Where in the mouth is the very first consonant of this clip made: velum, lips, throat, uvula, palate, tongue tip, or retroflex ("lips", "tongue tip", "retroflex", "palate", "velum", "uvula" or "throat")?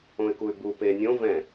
velum